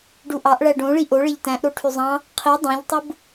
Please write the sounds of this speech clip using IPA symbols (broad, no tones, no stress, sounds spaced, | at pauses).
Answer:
ɖ u ʔ ɑ ʔ ɭ æ ɖ õ ɭ i ʔ o ɭ e ʎ t æ̃ ʔ ɾ o ʈʰ y zˤ ɑ̃ | qʰ i dˤ õ ʎ tˤ ɯ b